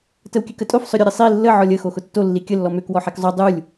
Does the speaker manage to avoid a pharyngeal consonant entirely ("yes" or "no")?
no